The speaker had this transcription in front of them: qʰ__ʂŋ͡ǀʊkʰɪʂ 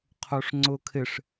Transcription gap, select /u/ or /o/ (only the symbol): o